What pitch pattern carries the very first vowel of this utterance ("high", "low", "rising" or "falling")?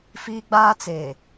high